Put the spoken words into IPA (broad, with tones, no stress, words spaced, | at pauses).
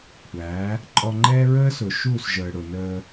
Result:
kʷʰæː˨˦ | ǃʼɔ˧ŋ͡ǃɛː˦ɹəː˦sʊ˨ ʃuː˦˨sʒəː˨ɽʊ˨nəː˧